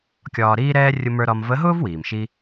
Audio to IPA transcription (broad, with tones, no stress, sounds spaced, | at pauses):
kʲ ɒː˧ ɾ iː˥ ɾ ɛː˥ rʲ ʊ˧ m ə˞˧ ɾ ɒ˧ m v ə˧˥ ɦ ʊː˥ v w iː˩ m ʃ i˥